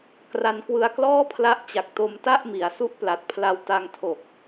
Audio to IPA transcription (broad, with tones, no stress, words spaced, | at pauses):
kra˧nkwɯ˧a̯ klɔː˥˩pʰla˦˥ʔ t͡ɕa˨˩k̚ to˧mta˥˩ʔ mi˩˦a̯su˥˩ʔpla˨˩t̚pʰla˧w ta˧ŋtʰo˨˩k̚